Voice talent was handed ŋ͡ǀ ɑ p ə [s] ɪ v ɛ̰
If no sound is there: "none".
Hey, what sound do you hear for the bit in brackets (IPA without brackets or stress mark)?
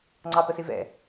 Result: s